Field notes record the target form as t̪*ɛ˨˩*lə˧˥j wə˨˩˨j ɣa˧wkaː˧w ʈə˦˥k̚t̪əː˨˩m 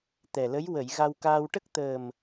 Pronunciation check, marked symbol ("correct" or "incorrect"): correct